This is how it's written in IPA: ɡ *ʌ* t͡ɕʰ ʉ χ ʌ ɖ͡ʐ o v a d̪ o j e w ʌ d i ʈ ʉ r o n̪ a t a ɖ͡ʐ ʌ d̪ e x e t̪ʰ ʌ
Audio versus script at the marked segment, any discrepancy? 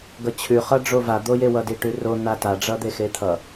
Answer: no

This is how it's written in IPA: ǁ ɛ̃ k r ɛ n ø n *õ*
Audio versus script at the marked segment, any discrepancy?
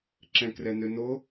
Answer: yes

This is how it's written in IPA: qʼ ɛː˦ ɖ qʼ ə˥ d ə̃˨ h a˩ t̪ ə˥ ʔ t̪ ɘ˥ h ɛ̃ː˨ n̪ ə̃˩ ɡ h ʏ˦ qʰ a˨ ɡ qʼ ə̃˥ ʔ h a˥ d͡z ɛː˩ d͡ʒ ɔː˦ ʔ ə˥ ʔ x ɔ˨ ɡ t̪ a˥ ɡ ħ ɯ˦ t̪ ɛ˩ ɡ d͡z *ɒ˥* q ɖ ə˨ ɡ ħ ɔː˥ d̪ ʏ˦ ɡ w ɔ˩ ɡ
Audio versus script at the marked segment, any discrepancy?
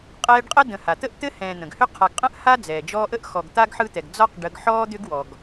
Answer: no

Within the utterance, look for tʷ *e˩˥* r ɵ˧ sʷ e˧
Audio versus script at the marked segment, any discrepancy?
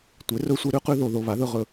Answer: no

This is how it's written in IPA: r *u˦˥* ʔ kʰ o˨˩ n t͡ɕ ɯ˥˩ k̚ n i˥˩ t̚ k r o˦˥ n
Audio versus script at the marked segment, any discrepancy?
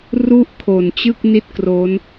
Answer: yes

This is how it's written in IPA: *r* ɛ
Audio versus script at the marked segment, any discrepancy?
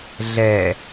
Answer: yes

